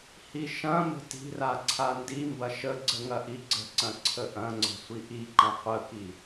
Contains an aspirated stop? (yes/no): yes